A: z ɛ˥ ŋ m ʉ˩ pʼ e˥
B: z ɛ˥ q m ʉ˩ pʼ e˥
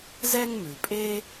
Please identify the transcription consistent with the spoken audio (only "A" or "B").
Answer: A